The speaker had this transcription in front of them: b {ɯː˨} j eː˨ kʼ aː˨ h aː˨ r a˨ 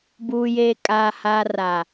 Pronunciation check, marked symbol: incorrect: uː˨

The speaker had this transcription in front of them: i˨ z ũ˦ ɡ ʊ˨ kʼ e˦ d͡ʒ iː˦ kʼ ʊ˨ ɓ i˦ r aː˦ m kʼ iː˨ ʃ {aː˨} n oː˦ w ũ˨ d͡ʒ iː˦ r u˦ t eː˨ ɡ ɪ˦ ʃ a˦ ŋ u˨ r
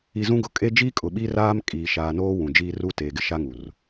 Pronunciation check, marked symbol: correct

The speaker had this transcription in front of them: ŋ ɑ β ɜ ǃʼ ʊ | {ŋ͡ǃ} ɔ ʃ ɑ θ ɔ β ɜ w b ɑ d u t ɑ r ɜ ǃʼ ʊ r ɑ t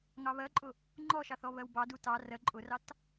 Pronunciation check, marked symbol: correct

